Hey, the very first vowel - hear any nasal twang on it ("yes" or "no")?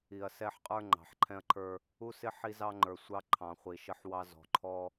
no